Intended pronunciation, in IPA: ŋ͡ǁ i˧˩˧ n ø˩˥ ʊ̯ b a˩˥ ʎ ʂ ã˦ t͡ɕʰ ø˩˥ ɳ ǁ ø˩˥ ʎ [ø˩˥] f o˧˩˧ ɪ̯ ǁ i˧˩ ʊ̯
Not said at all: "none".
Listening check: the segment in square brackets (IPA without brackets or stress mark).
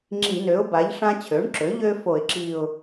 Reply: ø˦